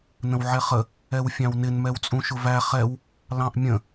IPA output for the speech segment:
n ə̃ w ʕ ɛ χ ə | ɛ w fʲ ɑ̃ w n ɪ n m ɛ w t͡sʼ ũ ʃ ʊ v æ χ ɛ w | l ɑ̃ ʔ mʲ ə̃

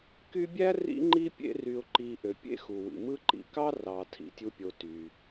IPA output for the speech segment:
k y˦ bʲ æ˥ r ḭ˥ ŋ͡ǃ i˥ pʲ ḛ˦ r y˨ ʊ̯ ǃ i˨ ʔ ø˩ pʲ ḛ˥ x u˩ w ḭ˩ m ɯ˦ ǃ ḭ˨ k ɑ˥ r ɑ˨ tʰ ḭ˩ tʲ u˦ pʲ o˨ t y˩

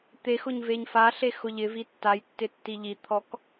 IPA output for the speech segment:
t̪ e x ʊ ɲ v e ɲ f a ɬ e x ʊ ʎ ɪ v i tː a j tː ɪ tː i ʎ i t̪ʰ ɔ k

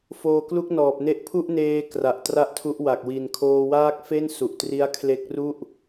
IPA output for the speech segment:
f oː˧ k l u˥˩ k̚ n ɔː˨˩ p̚ n e˥˩ ʔ pʰ u˥˩ ʔ n eː˧ k r a˨˩ ʔ t r a˥˩ ʔ tʰ u˦˥ ʔ w a˨˩ k̚ w i˨˩ n kʰ oː˧ w aː˥˩ k̚ f e˥˩ n s u˨˩ ʔ t r i˦˥ a̯ kʰ l e˦˥ k̚ r u˥˩ ʔ

